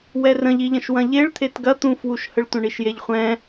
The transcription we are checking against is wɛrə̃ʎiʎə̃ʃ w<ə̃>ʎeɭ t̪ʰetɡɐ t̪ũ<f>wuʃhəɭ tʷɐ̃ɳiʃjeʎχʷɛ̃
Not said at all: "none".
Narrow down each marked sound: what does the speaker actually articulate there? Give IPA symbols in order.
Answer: ɐ̃, f

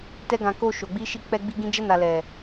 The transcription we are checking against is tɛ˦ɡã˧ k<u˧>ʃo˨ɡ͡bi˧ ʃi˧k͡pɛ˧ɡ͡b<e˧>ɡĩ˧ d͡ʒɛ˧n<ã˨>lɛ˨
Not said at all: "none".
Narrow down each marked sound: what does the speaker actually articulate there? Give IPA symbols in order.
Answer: o˧, i˧, a˨

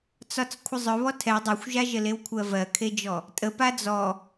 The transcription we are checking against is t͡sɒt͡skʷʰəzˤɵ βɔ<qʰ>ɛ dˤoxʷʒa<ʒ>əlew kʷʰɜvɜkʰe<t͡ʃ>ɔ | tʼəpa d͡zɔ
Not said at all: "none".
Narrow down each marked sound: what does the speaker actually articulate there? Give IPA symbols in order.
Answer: tʰ, ʒ, d͡ʒ

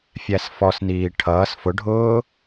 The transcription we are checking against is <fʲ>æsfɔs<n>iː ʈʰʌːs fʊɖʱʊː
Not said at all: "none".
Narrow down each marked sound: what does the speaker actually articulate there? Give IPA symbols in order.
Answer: fʲ, n

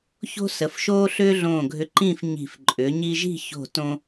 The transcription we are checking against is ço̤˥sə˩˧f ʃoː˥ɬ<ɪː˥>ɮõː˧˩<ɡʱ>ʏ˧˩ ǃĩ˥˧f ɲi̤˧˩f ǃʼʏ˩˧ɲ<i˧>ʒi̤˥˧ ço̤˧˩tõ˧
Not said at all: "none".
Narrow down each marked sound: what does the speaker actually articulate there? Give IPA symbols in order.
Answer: ʏː˥, ɡʱ, i˧

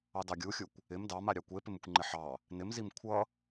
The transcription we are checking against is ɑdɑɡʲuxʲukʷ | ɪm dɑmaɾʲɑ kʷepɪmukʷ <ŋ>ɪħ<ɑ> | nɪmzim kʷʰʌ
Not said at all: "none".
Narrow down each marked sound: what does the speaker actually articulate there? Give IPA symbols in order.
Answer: ŋ͡ǃ, ɑ

